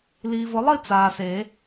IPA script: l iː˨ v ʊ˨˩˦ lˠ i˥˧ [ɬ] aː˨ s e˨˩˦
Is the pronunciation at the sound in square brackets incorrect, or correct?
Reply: incorrect